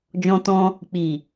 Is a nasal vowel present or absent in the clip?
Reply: present